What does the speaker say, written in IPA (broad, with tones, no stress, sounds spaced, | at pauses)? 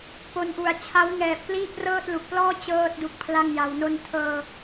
p o˧ n ʔ u˨˩ a̯ t͡ɕʰ a˦˥ w ŋ ɛː˨˩ p̚ k l iː˥˩ p̚ r ɤː˥˩ t̚ l u˨˩ k̚ p l ɔː˥˩ t͡ɕ ɤː˥˩ t̚ d u˦˥ k̚ pʰ l a˥˩ ŋ j a˧ w n o˧ n tʰ ɤː˧